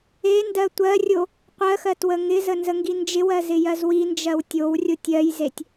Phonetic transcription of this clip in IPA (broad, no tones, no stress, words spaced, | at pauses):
endɜ tʷɜrʲo | qʷɜxɜt wəŋɪzə nzəŋɡind͡ʒɪwɜ zɪjɜzwind͡ʒɜw tʲowrʲotʲ ɜjzetʲ